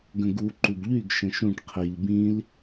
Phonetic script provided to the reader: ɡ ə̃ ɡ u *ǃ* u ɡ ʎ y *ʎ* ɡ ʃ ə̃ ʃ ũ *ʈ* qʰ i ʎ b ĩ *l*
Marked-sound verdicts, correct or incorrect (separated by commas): correct, incorrect, correct, correct